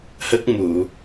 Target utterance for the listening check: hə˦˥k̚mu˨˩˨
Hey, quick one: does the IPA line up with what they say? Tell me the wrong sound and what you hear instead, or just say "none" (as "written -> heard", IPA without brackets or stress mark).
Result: none